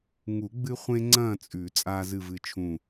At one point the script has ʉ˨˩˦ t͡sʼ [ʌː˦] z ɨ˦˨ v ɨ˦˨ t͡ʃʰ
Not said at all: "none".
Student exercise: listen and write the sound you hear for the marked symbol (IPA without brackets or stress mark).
aː˦